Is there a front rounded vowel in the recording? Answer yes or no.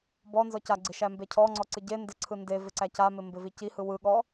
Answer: no